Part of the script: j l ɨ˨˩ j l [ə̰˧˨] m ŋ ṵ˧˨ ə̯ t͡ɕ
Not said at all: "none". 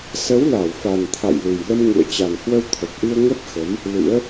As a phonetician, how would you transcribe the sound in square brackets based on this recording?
ə˧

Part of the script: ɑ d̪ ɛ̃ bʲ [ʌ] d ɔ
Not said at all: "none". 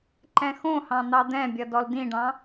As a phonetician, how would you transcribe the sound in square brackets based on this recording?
ʌ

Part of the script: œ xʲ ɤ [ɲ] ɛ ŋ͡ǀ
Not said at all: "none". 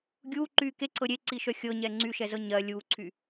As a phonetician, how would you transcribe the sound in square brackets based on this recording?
ɲ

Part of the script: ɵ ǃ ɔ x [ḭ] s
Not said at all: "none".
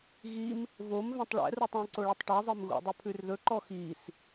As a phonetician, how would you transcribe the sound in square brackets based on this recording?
i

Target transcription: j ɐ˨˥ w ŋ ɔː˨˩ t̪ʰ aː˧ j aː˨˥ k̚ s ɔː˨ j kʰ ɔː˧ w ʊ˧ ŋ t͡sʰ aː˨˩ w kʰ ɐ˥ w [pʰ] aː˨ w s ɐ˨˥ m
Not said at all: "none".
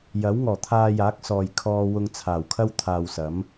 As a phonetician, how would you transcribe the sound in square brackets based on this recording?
t̪ʰ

